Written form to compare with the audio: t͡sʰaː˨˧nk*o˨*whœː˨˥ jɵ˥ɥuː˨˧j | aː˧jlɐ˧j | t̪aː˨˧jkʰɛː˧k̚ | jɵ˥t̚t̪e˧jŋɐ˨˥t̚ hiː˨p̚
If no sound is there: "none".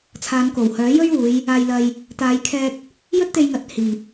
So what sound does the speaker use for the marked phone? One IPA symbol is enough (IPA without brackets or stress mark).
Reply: o˨˩